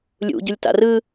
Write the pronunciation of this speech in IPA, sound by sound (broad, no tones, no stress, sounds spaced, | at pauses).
lʲ ṵ ɟ u lʲ t a̰ r ɯ